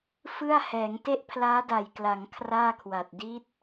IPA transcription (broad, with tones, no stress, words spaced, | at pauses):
fɯ˥˩a̯hɛː˩˦ŋ te˥˩ʔpʰlaː˦˥da˨˩jkla˩˦ŋ kʰraː˥˩kʰwa˨˩t̚ di˦˥t̚